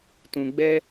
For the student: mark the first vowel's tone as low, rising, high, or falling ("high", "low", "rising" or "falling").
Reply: low